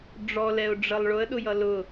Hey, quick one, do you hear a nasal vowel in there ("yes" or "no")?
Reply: no